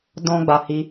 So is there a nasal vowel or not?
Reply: yes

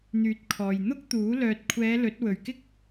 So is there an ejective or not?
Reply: no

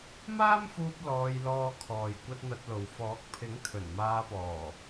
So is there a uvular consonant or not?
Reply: no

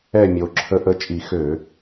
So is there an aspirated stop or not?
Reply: yes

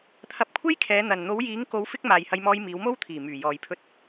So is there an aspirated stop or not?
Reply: yes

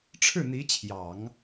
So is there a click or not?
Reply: no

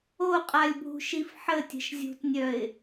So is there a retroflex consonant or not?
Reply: no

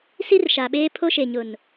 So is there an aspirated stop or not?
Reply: yes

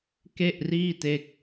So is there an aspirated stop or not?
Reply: no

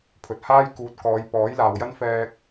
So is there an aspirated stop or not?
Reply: yes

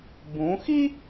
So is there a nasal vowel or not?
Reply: yes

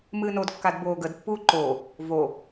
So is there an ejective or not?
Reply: no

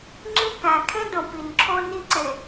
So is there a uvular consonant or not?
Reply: no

